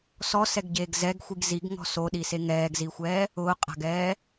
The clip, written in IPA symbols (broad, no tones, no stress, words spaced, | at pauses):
sɔsɛɡɟeːɡ zɛɡxʷiɡ ziɡŋɔ̤ soɗise ŋɛːɡzixʷɛː | ʊːqʼa̤ɡɛː